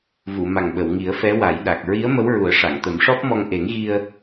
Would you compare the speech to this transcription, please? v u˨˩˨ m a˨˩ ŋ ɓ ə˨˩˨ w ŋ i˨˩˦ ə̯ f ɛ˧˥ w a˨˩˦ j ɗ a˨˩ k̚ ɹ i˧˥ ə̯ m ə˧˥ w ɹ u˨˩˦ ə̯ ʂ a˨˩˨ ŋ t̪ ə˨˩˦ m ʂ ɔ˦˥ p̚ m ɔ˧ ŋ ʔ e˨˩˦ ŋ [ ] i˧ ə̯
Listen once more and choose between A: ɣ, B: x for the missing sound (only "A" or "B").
A